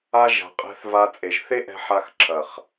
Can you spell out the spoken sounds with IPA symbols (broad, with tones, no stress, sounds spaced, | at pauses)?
a˧ ʒ a̤˨ qʼ ɛ̤˧ θ v a˧ t͡sʼ e˨ ʒ θ e˦ ʔ ɛ̤˧ ħ a˧ x ǁʰ ɐ˨ χ